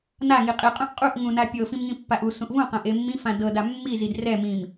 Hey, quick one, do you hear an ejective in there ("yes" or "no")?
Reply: yes